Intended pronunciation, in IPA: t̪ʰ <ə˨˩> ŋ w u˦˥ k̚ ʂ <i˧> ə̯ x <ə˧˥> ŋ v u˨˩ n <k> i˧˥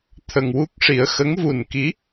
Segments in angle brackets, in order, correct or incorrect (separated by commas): correct, incorrect, correct, correct